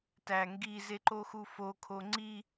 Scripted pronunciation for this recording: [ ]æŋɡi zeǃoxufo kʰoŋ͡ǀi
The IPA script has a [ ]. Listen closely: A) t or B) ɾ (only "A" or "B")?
A